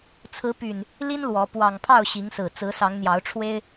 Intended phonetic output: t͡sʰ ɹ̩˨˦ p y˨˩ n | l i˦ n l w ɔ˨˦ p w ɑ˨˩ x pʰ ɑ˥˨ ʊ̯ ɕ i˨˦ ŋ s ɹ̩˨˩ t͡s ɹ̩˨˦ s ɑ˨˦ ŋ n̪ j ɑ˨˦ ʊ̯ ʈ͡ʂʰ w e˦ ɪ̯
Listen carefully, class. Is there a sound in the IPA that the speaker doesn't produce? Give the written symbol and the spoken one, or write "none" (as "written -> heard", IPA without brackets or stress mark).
x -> ŋ